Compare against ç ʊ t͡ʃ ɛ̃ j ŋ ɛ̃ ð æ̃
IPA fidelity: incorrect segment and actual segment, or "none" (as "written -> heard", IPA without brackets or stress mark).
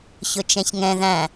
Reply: j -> ç